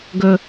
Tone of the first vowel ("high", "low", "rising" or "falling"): high